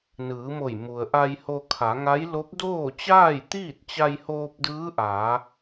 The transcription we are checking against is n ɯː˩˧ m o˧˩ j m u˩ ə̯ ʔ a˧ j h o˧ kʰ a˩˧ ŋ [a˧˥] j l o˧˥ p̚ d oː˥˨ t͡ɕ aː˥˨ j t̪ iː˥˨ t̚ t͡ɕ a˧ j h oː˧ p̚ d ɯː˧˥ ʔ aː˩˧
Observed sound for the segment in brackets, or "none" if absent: a˧˥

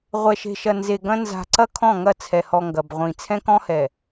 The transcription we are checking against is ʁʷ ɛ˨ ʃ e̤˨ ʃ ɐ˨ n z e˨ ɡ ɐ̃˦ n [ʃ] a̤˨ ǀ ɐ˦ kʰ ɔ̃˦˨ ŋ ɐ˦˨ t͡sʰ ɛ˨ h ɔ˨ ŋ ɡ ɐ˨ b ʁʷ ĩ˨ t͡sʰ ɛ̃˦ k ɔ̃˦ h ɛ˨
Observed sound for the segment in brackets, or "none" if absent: z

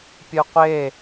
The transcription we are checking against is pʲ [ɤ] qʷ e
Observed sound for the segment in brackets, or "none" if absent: ɯ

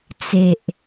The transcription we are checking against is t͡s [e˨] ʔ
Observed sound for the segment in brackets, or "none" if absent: e˨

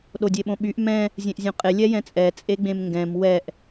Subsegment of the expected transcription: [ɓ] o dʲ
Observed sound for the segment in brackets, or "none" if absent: ɗ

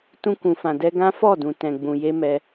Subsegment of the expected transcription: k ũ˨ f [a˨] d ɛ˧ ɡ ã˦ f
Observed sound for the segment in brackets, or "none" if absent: ã˨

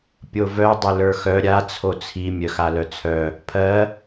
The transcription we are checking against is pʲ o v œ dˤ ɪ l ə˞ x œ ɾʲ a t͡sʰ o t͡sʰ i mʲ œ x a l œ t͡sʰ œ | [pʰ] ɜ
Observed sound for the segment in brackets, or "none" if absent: pʰ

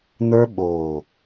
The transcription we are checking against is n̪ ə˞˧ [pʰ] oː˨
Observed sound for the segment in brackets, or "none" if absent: ɓ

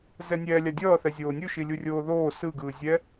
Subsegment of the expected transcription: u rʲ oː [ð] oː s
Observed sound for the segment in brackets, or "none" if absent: ð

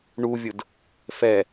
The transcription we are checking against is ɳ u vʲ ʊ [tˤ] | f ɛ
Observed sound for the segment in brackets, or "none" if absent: d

